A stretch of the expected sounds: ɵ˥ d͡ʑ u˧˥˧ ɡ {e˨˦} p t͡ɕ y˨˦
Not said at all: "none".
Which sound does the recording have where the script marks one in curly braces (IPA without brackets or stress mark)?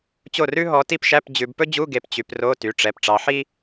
e˨˦